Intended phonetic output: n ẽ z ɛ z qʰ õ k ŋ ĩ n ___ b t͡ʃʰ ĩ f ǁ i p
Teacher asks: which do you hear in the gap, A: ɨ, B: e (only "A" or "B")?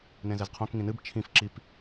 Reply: A